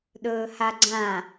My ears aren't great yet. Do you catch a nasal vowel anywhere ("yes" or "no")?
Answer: yes